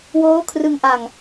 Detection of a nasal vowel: absent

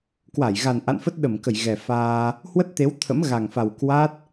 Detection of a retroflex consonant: absent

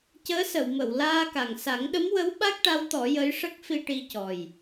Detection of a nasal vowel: absent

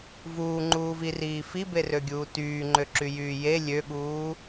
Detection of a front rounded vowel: present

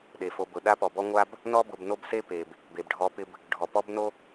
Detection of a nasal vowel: absent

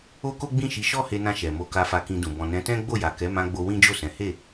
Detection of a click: absent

